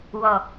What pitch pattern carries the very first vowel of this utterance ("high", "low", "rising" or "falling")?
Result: low